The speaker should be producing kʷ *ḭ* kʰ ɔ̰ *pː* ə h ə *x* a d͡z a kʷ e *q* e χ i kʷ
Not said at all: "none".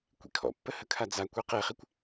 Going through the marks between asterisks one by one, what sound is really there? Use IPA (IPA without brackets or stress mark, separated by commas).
ḭ, pː, kʰ, q